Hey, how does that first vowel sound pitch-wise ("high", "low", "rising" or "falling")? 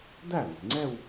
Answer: falling